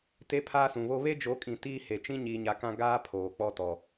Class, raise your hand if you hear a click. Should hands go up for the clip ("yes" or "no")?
no